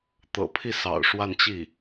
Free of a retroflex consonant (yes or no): no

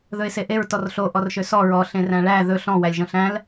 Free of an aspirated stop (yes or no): yes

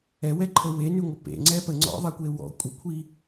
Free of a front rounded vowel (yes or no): no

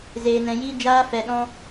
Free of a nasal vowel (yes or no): no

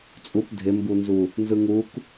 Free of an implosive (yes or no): yes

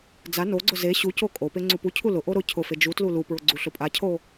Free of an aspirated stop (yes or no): no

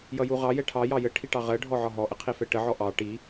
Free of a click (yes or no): yes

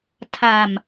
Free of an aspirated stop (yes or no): no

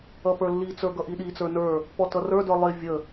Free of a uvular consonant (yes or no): yes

